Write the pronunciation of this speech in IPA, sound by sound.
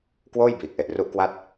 k w oː˥˩ j b iː˨˩ k̚ ʔ e˨˩ ʔ r u˦˥ ʔ k w a˥˩ t̚

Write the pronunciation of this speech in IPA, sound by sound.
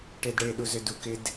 ʈ e d ɽ e ɗ u z ʏ d u k ɪ d

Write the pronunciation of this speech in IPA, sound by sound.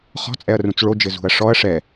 χ ɔ̤ t͡sʼ ɛ ɐ̯ r ũ t͡s ɭ o d͡ʒ ɘ z ṳ ɐ̯ ʂ ɔ ɐ̯ ʂ ɛ

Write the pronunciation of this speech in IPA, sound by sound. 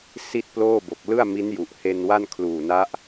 s i˥˩ t̚ p l oː˥˩ b o˨˩ k̚ l ɯ˥˩ a̯ m i˦˥ n j u˨˩ ʔ h e˧ n w a˥˩ n kʰ l uː˨˩ n a˦˥ ʔ

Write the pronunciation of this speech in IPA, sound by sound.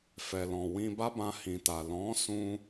f ɛ˨ l ɔ̃˨ w ĩ˧ b a˦ b ã˧ h ĩ˨ t a˨ l ɔ̃˨˦ s ũ˦

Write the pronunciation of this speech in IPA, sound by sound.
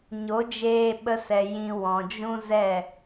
ɲ o˨˦ d͡ʒ eː˧ ɓ ə˧ s ɛ˨ j ĩ˧ w ɔ̃˨ d͡ʒ ũ˦ z ɛ˦˨

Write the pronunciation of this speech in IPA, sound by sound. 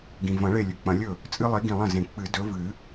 ɡ ĩ˩ v ɐ̃˨˩˦ ɭ e˧˩ lʲ ʉ˩ k͡p ɐ̃˨˩˦ lʲ ɵ˥˩ | t͡sʼ ɨ˦ lˠ i˨˦ ɡ ĩ˧˩ lˠ ɐ̃˥˩ z ẽ˨˩˦ k͡p ɨ˨˩˦ d ɵ˨˦ v ɨ˨˩˦

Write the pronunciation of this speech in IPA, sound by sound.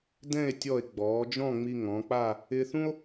d ɛ̃˥˧ e̯ tʲ ɔ˧˩ e̯ ɡ͡b ɔː˩˧ d͡ʒ ɔ̃˥˧ ŋ͡m i˧ ŋ ɔ̃˩˧ k͡p a˥˧ | ɪː˧ θ ũ˥ o̯

